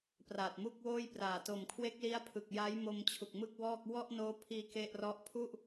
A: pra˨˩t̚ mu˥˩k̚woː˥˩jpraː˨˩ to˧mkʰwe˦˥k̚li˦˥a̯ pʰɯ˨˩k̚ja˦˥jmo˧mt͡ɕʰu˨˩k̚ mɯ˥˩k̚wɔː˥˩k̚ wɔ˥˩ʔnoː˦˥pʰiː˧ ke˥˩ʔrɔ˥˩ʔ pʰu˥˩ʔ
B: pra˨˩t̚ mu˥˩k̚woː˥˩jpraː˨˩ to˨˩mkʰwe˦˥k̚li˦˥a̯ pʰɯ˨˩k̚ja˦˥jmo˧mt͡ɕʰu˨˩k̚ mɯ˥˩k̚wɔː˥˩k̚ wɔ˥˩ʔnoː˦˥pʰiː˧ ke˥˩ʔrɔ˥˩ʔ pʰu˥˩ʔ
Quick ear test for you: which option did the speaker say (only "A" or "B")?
B